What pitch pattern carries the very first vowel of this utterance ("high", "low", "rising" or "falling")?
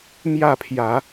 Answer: falling